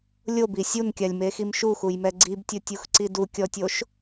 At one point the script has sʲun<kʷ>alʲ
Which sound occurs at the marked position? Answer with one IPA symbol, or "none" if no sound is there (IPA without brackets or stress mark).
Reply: kʲ